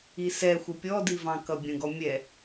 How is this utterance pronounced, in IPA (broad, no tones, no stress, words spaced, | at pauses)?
isɛ xʷɛpʲɔdivɑ̃ kʌbʲə̃ɡɔ mʲɛ